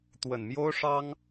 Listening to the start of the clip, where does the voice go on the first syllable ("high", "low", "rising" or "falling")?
low